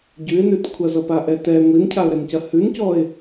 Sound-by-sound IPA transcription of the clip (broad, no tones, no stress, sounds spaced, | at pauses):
ɟ ʉ ɪ̯ n ʉ t kʷʰ ɐ z ʌ p a ʔ ɛ t ɛ ŋʷ i n cʰ a ʊ̯ ɾ ɛ n c ɐ h ʉ n c ɔ ɪ̯